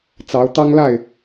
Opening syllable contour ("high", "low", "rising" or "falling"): rising